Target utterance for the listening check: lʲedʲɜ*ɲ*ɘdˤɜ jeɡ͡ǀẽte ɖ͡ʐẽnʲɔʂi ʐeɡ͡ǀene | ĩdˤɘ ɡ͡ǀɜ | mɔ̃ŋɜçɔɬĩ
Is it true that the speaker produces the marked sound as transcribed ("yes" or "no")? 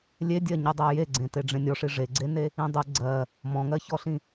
yes